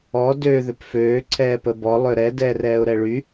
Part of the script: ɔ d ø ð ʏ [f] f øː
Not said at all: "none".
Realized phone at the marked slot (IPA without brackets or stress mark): p